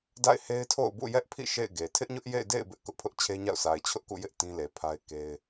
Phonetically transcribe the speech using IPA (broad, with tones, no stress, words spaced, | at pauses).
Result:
da̰˦˨ɪ̯he˦ɪ̯tʰo̰˦˨ʊ̯ bṵ˦˨jɛ˦ʔpʰḭ˦˨ ʃḛ˦˨ɪ̯ɡe˨ tʰɪ˦ʔɲʊ˦ʔjḛ˦˨ɪ̯ dḛ˦˨ɪ̯ bɪ˦ʔ kʊ˦ʔpʰʊ˦ʔt͡ɕʰe˦ɲa̰˦˨ʊ̯ sʰa˨ɪ̯t͡ɕʰʊ˦ʔkṵ˦˨jɪ˦ʔ tĩ˦le˨pʰa˦ɪ̯ ke˦ɪ̯